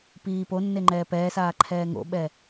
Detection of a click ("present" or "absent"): present